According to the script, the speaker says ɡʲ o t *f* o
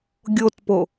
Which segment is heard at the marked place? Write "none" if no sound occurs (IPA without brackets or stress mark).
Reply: p